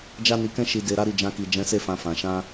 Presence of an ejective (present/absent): absent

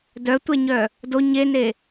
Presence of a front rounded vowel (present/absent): present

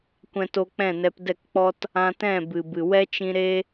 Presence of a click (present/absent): absent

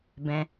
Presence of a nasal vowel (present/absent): present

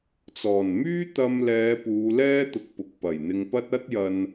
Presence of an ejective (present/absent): absent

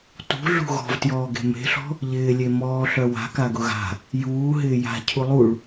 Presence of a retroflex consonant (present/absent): present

